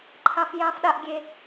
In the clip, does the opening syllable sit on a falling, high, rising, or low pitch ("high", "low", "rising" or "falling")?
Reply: high